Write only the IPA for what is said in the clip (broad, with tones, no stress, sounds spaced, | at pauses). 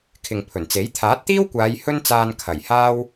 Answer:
kʰ ɪ˨ ŋ pʰ ɵ˨˩ n t͡s e˨˥ j t̪ʰ aː˨˥ t̚ t̪ iː˥ w kʷ aː˨˧ j h ɵ˥ n t͡s aː˧ n kʰ ɐ˨˩ j h aː˥ w